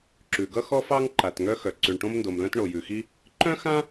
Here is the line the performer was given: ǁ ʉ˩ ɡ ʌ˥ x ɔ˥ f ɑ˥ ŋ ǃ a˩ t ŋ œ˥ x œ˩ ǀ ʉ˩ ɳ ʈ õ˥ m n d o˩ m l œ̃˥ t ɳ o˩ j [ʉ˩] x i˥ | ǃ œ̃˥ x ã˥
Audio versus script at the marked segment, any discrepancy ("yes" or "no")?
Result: no